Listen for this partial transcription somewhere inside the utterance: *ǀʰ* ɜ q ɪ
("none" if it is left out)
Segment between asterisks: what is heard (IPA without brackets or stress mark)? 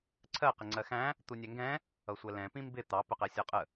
ǀʰ